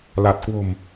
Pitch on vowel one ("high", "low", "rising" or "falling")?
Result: low